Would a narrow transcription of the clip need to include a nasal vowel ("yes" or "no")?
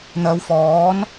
no